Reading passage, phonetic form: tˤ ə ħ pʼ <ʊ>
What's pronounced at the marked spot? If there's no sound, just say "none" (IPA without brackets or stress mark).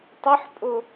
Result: ʊ